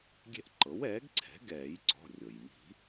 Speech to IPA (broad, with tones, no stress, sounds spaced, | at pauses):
ɡʲ ɛ̤˦ ʔ ǃ ɤ˩˥ w ɛː˩˥ ɡ ǀʰ ɛ̤˩˥ ɡ ɛː˨˩˦ j ǀ ɔ̤˩˧˩ rʲ ɤ˩ j m i̤˨˩˦